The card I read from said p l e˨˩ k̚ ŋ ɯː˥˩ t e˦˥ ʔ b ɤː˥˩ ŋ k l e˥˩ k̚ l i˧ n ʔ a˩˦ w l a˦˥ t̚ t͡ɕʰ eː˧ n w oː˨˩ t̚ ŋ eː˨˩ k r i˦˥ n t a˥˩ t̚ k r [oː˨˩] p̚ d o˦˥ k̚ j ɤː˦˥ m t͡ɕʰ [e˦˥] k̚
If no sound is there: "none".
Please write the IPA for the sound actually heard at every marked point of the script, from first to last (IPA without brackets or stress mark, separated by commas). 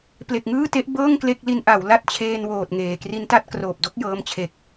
oː˨˩, e˨˩